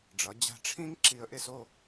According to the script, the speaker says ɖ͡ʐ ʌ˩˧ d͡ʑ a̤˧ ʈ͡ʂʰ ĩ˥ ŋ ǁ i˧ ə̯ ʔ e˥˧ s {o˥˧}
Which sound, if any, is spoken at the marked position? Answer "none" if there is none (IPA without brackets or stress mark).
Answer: o˥˧